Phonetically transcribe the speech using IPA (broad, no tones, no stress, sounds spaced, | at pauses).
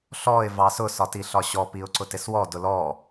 ɬ ɔ ɪ̯ v ɑ s ʊ s ɒ t i ɬ ɒ ɕ ɔ p i ʊ̯ ǀ ʊ t ɪ s w ɔ d ʊ l ɔ